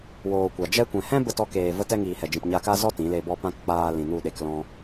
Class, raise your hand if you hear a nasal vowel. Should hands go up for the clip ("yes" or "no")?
yes